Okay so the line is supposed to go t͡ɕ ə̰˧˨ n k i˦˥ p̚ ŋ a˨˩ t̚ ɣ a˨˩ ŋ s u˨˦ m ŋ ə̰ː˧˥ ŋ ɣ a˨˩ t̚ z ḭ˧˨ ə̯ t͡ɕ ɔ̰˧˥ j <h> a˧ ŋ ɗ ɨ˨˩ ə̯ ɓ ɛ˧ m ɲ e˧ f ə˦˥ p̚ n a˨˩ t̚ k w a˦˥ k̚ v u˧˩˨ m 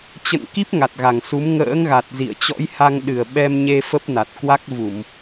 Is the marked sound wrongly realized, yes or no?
no